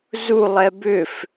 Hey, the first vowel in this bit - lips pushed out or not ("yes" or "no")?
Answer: yes